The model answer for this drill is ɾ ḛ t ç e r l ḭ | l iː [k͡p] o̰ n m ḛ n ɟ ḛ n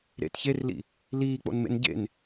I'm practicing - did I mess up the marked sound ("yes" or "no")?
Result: no